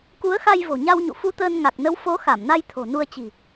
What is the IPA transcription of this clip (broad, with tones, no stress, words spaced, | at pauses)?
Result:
ku˨˦ə̯xa˧j vo̤˨˩ɲa˧wɲṵ˧˨ fu˧t̪əː˧nŋa˨˩k̚nə˨˦w fo˨˦xa˧˩mna˧j t̪ʰo̤˨˩nu˧ə̯t͡ɕi̤˨˩